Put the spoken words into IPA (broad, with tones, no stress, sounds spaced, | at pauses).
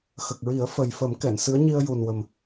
x ə˨˩ k̚ ɹ i˨˩˦ ə̯ f ə˨˩ j f ə˨˩˦ m k ɛ˨˩˨ n s ɨ˧˥ ə̯ ɲ i˧ ə̯ j u˨˩ n w ə˨˩ m